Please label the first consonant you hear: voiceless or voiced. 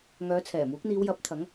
voiced